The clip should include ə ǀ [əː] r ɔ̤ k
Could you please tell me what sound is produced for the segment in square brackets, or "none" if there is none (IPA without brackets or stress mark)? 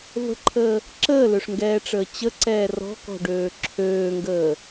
ɛː